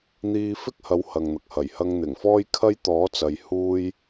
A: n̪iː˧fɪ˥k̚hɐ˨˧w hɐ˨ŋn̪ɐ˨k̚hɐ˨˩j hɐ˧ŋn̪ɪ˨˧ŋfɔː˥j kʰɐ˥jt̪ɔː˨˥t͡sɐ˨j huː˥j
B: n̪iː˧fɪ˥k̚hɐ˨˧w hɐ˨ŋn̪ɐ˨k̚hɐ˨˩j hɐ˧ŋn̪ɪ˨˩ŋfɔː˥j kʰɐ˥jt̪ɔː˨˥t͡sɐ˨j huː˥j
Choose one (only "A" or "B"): B